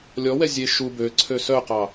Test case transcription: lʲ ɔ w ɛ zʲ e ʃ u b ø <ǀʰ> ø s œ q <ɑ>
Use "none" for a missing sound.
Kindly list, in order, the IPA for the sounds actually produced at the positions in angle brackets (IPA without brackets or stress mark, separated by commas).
ǀʰ, ɑ